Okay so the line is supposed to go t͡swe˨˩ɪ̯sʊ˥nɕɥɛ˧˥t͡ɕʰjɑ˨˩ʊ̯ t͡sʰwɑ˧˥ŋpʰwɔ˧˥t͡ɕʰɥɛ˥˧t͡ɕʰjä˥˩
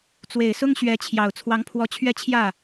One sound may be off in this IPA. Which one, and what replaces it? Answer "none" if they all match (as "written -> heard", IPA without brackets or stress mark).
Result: n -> ŋ